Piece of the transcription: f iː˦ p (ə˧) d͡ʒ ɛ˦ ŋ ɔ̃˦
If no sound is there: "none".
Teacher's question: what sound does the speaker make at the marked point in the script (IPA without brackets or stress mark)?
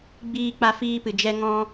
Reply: ɨ˧